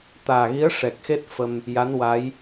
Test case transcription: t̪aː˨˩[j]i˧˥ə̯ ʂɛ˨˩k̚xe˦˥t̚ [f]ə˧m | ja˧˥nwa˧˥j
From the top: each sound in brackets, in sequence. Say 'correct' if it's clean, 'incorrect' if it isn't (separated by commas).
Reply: incorrect, correct